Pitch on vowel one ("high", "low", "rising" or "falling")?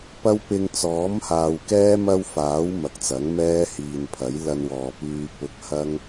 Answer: high